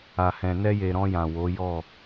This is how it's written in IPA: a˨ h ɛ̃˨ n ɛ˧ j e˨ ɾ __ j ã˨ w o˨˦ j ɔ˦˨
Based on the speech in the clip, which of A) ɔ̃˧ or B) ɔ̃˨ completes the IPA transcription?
A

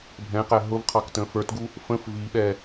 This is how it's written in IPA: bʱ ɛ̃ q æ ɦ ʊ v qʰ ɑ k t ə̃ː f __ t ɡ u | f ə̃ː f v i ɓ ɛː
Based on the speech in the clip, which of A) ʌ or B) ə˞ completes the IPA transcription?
B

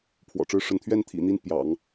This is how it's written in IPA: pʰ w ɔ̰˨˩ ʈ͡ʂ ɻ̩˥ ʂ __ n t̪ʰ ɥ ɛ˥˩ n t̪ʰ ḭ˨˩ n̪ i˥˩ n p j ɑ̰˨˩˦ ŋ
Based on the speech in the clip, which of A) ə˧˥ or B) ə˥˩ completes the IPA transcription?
A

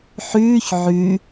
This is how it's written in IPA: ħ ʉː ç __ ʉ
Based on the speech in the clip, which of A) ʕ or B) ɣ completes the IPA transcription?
A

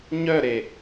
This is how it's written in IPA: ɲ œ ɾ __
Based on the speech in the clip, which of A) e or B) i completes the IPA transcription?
A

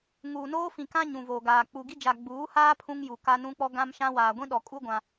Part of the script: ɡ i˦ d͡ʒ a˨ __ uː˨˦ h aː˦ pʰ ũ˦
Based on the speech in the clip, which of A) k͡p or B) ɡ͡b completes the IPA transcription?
B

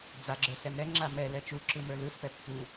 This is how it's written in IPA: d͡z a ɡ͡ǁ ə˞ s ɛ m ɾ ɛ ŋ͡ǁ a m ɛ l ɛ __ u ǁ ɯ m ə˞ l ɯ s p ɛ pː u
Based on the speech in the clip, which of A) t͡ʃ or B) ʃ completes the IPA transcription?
A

